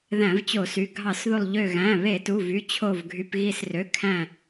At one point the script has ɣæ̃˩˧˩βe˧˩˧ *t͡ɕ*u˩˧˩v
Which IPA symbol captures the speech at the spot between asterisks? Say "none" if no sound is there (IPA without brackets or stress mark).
t